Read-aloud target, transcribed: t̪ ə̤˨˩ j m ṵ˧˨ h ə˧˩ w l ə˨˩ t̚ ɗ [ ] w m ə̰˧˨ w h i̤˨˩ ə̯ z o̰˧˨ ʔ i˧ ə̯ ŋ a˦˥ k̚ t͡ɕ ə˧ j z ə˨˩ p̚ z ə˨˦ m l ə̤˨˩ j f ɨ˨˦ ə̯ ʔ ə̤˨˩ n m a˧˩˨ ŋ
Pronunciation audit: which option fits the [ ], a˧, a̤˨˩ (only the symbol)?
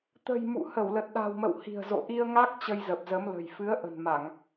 a̤˨˩